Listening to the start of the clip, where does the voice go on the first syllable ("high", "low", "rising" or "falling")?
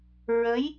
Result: rising